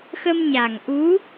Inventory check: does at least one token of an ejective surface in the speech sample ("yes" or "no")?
no